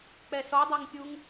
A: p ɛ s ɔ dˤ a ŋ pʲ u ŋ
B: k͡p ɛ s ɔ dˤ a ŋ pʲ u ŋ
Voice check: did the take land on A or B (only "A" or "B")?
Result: B